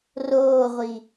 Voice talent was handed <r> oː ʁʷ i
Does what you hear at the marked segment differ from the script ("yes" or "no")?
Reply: no